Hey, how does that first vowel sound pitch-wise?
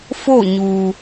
falling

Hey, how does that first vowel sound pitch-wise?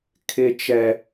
high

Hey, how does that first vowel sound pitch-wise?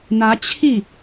rising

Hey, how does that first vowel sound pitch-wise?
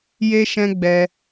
high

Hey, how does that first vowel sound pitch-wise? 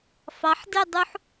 rising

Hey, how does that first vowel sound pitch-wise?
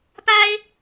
high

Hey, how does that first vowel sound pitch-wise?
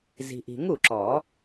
low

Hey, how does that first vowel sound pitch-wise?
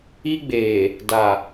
high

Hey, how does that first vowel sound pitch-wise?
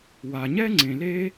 low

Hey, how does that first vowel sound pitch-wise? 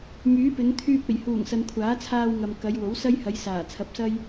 rising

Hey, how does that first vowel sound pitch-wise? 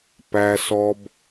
high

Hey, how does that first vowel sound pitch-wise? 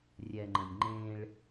low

